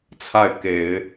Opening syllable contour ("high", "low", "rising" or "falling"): falling